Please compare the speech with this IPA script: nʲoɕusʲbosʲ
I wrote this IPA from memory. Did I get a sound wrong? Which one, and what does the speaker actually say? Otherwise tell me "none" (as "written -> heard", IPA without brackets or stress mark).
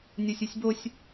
ɕ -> sʲ